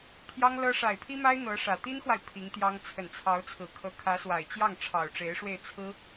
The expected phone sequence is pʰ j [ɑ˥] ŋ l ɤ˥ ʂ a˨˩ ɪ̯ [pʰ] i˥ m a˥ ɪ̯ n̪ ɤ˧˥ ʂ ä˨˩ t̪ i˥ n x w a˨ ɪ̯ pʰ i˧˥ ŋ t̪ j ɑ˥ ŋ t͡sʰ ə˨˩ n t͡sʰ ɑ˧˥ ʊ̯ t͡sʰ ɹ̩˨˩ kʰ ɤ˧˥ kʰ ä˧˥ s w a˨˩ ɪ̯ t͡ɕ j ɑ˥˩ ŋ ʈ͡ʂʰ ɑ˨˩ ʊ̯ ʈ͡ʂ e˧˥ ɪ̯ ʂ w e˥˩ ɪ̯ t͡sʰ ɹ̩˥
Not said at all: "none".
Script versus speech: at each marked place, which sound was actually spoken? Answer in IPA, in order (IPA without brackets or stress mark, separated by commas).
ɑ˥, pʰ